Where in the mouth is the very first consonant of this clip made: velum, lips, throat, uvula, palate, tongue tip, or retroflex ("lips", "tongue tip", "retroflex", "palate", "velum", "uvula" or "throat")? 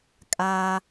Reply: velum